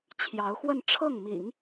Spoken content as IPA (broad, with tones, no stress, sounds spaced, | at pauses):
t͡ɕʰ j ɑ˧˥ ʊ̯ x w ə˥˧ n ʈ͡ʂʰ ɤ˥˩ ŋ m ḭ˨˩˦ ŋ